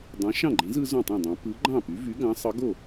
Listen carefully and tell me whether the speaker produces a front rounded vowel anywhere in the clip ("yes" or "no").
yes